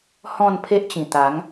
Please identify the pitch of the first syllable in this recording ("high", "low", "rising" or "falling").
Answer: falling